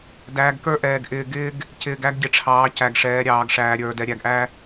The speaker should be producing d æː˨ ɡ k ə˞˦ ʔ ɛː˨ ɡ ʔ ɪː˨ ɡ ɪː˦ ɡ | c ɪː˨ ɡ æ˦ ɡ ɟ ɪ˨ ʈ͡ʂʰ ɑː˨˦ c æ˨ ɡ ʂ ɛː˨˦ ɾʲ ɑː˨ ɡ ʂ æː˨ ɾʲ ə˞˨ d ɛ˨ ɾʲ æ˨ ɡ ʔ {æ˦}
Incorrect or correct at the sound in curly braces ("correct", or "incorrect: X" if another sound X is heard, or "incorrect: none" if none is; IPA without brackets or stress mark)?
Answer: correct